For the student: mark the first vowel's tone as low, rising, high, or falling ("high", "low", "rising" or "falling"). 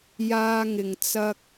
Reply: high